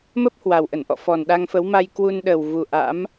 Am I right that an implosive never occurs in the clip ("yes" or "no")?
no